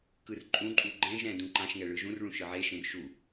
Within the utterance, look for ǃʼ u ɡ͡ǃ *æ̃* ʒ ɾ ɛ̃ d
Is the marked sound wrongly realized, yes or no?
yes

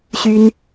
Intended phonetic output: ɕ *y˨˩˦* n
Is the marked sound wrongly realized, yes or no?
yes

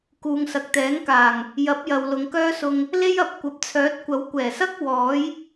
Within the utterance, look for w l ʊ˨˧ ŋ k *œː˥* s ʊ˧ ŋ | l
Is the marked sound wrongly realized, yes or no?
no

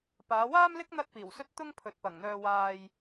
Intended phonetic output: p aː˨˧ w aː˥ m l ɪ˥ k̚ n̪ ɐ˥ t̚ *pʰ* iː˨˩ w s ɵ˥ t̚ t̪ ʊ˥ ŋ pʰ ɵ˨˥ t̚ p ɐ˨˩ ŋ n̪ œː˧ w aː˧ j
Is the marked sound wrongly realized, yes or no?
yes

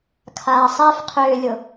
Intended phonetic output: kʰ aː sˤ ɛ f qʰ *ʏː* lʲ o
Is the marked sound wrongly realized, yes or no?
no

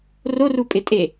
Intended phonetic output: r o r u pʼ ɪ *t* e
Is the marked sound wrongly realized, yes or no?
yes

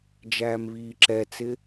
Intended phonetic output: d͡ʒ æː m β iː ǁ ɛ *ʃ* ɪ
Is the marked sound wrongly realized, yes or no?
yes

